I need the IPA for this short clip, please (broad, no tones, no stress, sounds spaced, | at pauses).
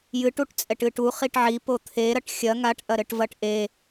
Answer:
j ɨ ʈ u ʈ t͡sʼ ɛ ʈ ɨ ʈ u χ i ʈ ʕ i p o t̪ʰ e ɾ ɐ ʈ xʲ ɐ ŋ a ʈ ʔ ɐ ɾ ɘ ʈ v ɐ ʈ ʔ e